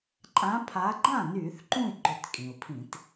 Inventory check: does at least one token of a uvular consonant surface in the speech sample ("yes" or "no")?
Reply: no